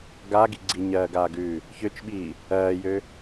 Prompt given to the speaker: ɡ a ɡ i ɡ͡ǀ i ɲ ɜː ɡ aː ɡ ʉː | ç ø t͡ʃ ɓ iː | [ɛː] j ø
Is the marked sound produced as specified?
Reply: no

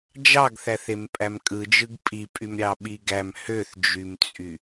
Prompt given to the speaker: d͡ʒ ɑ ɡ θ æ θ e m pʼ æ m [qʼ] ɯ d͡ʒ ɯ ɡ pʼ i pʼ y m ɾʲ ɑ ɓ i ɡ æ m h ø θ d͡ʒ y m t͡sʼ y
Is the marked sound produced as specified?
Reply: no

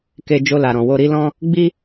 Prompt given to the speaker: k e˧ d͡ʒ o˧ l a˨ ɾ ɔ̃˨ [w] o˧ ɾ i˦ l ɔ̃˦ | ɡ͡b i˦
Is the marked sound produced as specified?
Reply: yes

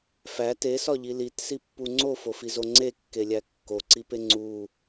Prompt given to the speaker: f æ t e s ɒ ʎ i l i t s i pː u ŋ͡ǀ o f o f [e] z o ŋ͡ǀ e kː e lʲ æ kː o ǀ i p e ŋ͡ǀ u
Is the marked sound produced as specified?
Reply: no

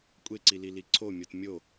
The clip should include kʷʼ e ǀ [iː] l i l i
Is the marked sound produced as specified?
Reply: no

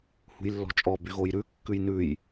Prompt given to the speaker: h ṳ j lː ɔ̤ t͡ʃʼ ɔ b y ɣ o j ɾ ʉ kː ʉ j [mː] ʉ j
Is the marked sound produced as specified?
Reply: no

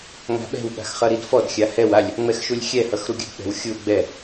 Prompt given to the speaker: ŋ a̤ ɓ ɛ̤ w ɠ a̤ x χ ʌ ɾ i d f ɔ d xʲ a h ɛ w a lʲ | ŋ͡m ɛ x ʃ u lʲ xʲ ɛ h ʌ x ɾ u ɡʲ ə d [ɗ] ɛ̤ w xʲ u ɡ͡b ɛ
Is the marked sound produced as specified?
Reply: no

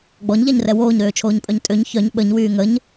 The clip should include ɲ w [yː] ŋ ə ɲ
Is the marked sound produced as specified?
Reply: yes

